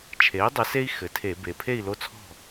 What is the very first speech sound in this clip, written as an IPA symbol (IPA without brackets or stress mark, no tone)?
t͡ʃʰ